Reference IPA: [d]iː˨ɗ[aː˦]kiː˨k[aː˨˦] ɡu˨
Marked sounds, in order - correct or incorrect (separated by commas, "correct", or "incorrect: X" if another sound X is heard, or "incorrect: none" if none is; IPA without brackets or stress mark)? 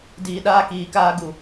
correct, correct, incorrect: aː˦